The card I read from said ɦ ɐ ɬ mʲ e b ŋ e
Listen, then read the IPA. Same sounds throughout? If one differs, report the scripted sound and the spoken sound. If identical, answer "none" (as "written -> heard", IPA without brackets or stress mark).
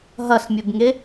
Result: none